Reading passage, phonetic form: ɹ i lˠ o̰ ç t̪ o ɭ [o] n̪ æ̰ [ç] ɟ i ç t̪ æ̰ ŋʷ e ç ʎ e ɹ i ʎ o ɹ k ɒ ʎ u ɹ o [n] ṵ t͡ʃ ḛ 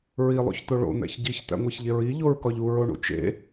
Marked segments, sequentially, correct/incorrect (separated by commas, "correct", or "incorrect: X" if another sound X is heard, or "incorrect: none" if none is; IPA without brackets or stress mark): incorrect: o̰, correct, incorrect: ɳ